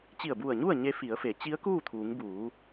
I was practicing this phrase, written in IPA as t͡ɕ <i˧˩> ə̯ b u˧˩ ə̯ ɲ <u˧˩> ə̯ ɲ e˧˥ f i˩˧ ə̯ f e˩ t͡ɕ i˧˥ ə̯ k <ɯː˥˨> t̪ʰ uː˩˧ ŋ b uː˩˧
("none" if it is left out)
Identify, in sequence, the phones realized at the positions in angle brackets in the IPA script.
i˧˩, u˥˨, uː˥˨

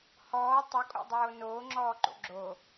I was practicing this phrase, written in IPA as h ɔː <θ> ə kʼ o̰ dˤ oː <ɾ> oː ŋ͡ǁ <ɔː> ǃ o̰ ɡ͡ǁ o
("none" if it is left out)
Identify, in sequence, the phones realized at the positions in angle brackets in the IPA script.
tˤ, n, ɔː

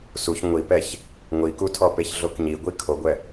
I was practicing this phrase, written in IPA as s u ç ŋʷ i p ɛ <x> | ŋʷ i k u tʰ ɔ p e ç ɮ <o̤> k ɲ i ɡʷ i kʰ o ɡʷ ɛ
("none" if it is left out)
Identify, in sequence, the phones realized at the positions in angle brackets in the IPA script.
ç, o

